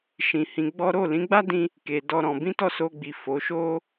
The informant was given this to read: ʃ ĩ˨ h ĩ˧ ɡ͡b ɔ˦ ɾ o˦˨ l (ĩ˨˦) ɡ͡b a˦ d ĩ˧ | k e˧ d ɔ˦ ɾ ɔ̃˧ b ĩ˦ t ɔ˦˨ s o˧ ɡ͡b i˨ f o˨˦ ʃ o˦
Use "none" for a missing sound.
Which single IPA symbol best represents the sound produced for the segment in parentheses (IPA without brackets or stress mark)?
ĩ˨˦